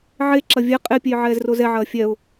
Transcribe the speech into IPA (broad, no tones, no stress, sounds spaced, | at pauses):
ʕ e ǁ ɐ vʲ ɛ qʼ e pʲ e j ʕ ɛː z r o z ɛ ʕ ɐː fʲ ɛ ʊ̯